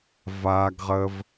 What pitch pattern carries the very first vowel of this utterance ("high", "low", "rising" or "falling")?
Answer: high